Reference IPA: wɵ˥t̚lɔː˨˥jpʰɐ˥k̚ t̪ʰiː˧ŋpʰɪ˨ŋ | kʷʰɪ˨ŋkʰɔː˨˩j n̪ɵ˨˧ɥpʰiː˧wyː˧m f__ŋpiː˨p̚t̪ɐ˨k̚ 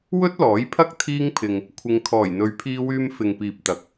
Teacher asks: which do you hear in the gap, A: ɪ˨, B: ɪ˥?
A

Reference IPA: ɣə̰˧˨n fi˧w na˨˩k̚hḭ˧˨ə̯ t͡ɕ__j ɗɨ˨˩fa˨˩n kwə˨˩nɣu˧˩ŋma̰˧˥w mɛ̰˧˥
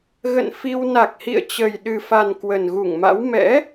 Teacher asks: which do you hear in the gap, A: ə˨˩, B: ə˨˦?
A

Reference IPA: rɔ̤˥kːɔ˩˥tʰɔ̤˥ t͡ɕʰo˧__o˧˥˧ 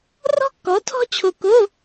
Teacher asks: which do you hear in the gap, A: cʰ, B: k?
B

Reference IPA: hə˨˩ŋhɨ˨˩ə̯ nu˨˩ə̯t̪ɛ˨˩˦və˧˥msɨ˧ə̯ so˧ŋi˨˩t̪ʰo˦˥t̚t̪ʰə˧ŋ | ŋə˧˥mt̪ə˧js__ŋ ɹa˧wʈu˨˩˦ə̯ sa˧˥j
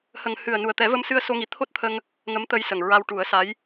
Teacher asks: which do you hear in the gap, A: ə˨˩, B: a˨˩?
A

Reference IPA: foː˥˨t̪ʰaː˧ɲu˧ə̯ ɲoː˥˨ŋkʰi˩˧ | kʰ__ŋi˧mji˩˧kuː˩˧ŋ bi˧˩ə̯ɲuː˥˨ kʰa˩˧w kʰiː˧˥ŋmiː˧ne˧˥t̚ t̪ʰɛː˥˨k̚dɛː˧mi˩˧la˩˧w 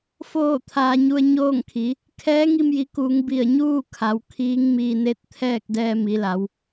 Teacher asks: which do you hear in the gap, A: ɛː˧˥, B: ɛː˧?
A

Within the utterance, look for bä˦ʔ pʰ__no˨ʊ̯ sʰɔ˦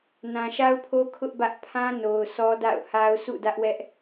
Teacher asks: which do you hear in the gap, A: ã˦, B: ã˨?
A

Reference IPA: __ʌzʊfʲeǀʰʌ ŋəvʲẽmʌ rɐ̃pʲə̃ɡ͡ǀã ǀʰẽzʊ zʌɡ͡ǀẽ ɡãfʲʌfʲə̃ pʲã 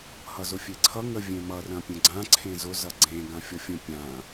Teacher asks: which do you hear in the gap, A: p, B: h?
B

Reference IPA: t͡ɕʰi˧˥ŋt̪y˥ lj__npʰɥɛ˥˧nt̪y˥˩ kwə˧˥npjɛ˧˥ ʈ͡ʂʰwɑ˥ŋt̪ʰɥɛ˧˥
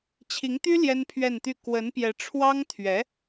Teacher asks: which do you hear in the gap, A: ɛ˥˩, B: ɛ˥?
B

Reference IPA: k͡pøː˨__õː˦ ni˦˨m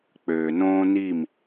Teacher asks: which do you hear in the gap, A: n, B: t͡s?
A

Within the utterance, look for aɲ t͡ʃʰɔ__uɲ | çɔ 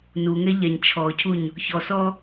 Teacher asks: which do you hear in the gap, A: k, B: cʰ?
B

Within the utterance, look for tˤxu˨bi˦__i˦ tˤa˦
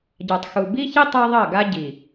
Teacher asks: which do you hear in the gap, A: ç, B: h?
A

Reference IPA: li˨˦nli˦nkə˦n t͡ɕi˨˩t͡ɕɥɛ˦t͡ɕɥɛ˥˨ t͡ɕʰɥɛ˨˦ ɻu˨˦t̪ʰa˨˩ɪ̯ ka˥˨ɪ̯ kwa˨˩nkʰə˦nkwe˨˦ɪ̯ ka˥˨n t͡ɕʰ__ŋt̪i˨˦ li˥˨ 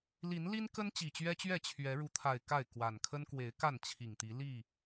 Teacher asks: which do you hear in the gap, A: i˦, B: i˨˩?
B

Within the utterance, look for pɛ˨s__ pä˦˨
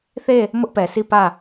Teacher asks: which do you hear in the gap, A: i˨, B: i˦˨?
B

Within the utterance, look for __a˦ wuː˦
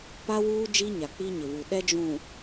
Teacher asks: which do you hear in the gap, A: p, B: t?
A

